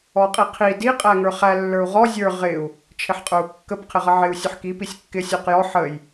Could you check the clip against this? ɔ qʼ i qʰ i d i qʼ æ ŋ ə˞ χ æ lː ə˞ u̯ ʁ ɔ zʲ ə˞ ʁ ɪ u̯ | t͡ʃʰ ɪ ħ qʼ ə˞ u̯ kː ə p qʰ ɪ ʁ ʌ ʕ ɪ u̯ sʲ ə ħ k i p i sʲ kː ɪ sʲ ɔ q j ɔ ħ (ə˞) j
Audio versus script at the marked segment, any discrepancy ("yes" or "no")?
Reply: yes